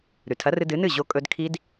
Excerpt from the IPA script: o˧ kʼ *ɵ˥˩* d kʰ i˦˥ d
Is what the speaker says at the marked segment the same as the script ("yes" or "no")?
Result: no